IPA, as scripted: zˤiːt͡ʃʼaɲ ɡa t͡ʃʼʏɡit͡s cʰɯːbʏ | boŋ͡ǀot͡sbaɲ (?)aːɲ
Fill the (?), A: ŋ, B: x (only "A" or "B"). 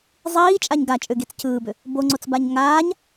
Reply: A